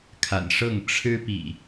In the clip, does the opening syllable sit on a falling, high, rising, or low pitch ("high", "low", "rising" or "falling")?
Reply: low